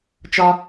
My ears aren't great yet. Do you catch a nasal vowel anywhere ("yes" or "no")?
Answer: no